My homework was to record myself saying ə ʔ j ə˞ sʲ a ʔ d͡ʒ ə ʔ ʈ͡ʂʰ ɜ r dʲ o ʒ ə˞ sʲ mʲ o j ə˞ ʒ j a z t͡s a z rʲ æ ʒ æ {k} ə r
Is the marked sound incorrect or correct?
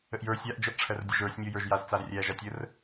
incorrect